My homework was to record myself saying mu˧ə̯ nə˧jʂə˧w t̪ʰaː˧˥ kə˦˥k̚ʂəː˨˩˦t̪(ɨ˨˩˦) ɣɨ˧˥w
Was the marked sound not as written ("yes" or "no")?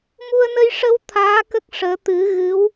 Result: no